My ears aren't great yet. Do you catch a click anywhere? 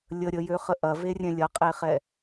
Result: no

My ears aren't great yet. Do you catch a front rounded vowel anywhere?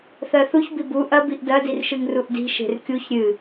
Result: no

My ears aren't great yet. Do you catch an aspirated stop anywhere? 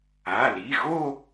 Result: no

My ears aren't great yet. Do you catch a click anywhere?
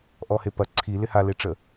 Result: yes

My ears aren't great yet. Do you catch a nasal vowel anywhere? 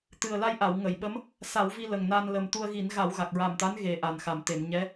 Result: no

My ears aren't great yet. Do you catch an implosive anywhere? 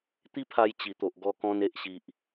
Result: no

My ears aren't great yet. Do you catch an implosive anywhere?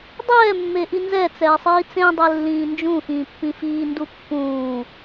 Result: no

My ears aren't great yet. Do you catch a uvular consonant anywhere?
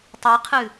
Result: yes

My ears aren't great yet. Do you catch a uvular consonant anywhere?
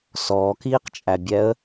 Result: yes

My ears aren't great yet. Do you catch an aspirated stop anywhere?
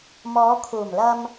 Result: yes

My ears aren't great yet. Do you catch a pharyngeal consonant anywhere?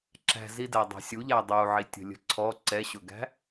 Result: yes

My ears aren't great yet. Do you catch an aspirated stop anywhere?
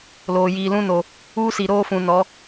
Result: no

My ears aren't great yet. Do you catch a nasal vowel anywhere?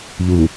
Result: no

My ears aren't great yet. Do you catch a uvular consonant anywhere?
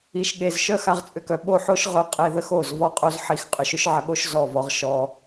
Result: yes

